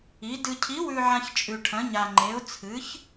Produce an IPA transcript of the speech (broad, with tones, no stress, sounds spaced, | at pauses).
i˧˥ d ɨ˧ cʰ i˧˥ w ʉ˧ ʕ ã˧ ç t͡ʃʼ ʉ˧ ʈʰ ɐ̃˧˥ ɲ a˧ ŋ͡ǃ e˧˥ ʊ̯ t͡sʰ ɨ˧˥ ç